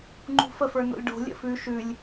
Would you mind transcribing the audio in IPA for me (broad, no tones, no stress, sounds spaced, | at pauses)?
ŋ͡ǃ ṳ f ə f ə˞ n o̰ lʲ ɖ o̤ lʲ ə̰ f ʉ ʃ ʉ lʲ